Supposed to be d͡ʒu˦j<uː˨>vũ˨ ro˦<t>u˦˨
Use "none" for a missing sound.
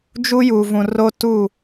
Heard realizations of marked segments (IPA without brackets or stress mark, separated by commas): uː˨, t